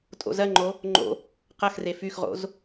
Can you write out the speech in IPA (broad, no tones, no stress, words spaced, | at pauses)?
tʼo̰zɜŋ͡ǃo | ŋ͡ǃo̰ | qɜxre fyxʁo̰z